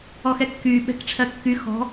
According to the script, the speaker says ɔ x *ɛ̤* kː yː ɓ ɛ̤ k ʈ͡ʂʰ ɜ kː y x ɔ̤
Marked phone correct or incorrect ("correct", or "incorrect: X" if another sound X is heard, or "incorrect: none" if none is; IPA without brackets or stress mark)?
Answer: incorrect: ɛ